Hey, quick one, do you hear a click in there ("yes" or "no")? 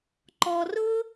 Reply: yes